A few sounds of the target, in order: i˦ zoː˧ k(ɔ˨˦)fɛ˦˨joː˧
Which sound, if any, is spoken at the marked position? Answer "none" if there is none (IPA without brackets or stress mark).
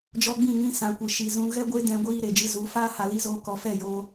ɔ˨˦